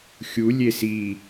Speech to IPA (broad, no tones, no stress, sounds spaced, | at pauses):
xʲ u lʲ e s i